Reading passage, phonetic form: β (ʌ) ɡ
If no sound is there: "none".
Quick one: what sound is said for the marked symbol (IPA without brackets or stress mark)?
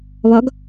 ɒ